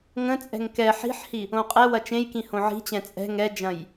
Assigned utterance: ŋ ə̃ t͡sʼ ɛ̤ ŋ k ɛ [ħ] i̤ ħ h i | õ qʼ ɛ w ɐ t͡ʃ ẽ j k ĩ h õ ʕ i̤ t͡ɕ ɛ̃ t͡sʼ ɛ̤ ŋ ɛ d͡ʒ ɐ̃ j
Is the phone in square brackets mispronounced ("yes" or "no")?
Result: no